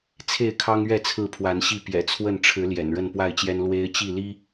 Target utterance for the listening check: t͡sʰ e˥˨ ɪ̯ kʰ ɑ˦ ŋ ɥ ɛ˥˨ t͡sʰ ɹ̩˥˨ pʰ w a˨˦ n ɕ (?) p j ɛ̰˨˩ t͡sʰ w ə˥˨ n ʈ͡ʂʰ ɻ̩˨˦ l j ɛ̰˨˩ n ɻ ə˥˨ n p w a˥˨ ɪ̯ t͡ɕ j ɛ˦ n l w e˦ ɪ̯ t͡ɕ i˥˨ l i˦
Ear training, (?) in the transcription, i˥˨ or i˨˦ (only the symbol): i˥˨